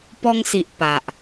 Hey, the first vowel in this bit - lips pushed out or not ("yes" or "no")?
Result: yes